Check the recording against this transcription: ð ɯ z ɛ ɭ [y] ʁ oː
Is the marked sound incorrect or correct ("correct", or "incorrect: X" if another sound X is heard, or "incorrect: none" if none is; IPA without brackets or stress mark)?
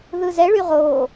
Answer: correct